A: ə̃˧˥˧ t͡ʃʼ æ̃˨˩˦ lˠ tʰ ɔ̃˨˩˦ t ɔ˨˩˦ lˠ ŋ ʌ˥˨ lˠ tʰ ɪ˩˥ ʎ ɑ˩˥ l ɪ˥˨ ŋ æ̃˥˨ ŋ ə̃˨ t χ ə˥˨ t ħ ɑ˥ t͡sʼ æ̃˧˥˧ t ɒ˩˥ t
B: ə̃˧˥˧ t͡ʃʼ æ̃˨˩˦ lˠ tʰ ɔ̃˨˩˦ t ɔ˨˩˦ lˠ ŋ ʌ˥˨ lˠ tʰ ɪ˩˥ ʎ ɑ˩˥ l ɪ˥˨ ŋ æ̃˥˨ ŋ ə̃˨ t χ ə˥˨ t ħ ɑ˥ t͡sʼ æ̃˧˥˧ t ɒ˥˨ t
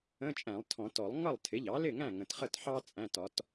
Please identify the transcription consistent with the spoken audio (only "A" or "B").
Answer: A